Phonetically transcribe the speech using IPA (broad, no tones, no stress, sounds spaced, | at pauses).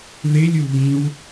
ð ɪ lʲ u β ĩ w